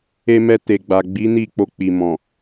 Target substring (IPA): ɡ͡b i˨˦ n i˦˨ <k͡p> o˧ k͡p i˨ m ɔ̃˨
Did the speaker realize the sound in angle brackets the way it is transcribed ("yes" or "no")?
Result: yes